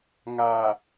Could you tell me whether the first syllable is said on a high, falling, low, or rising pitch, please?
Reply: low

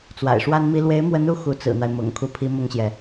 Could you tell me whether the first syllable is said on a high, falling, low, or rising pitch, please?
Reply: low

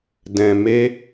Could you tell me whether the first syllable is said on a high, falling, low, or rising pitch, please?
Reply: low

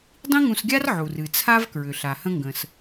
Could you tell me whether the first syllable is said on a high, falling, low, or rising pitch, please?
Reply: high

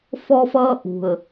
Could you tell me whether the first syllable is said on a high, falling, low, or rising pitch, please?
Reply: high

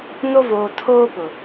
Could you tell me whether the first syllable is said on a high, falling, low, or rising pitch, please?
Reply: high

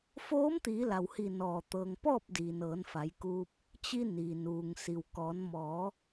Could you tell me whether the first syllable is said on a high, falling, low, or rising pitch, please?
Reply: rising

